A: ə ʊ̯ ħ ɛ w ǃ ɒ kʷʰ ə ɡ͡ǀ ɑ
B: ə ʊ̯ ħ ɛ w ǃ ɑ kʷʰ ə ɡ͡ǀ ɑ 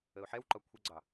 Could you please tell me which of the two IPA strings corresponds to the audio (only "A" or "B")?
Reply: A